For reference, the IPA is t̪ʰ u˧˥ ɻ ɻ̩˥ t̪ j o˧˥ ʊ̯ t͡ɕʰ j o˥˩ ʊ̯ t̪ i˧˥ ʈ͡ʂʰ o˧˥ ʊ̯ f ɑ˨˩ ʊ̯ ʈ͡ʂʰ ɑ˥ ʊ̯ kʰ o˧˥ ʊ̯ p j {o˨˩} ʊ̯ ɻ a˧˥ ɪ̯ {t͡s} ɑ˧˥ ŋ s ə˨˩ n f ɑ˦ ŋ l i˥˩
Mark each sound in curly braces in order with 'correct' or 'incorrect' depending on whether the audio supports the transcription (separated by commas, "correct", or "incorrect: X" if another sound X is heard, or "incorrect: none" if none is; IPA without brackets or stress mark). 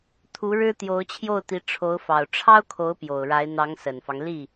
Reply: correct, incorrect: n̪